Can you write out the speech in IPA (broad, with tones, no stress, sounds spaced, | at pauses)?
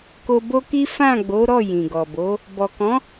k o˧ b o˦ k i˦ f ã˦˨ ɡ͡b o˨˦ ɾ ɔ˦˨ j ĩ˨ ɡ ɔ˨ b o˨˦ | b ɔ˨ k ɔ̃˨˦